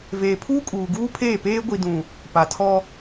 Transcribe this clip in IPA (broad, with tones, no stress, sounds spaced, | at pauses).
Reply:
v eː˨ pʰ uː˦ kʼ uː˨ ɡ uː˦ pʰ eː˦˨ p eː˦ ɡʷ i˨ d ũ˨ | p a˨ tʰ ɔ˦